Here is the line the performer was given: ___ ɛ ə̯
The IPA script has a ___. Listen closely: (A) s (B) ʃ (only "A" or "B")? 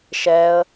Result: B